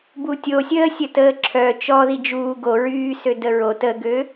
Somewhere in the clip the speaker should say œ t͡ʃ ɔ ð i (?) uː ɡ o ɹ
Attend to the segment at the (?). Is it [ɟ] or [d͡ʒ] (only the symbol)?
d͡ʒ